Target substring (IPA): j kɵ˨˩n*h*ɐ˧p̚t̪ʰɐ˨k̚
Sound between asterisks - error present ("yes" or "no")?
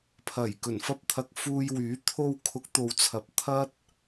yes